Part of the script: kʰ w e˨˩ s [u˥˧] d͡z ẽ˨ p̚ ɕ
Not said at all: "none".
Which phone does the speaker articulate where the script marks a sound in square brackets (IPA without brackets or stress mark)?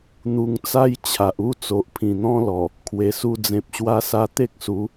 u˧